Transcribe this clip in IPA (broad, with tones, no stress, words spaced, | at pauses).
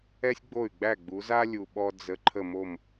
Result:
ɛ˥sʲɡ͡bo˥˩y̯ɡ͡bæ˥˩ ɡ͡bu˨˦za˥lʲu˨ ɓɔ˥d͡zə˧˥˧ ǃʰə˥˩mo˥˩m